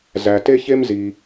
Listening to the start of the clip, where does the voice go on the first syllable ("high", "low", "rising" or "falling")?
low